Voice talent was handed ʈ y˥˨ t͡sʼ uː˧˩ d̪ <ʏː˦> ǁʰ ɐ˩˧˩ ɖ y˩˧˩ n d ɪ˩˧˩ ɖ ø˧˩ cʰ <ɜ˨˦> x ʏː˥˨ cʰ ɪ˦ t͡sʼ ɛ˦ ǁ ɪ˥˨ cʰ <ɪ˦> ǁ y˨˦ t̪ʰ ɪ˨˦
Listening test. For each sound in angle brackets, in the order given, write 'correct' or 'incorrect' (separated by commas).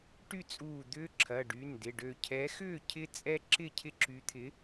correct, incorrect, correct